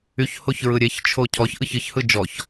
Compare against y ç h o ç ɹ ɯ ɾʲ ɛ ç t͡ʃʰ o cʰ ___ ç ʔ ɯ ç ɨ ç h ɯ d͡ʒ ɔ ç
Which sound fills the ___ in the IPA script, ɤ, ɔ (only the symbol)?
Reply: ɔ